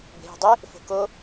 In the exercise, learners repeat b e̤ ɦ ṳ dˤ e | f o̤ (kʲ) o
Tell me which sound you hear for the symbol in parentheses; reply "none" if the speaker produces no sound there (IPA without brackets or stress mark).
k